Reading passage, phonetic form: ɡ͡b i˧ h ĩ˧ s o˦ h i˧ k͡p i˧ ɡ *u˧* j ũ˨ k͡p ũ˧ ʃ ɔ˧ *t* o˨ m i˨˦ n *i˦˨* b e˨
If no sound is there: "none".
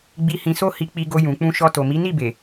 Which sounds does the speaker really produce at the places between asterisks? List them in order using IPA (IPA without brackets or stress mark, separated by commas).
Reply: o˧, t, i˦˨